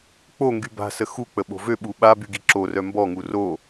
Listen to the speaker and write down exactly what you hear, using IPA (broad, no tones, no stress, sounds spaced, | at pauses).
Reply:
k͡p o ŋ ɡ y b a̤ s ə x u k͡p ə ɓ o̤ v ø ɓ u ɓ a b y ɡ i ǁ o r œ m b ɔ ŋ u r o